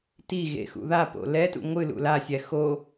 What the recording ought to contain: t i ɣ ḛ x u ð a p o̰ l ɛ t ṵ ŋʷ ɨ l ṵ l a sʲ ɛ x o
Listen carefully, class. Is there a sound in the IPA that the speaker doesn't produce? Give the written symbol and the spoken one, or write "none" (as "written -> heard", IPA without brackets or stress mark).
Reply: u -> ṵ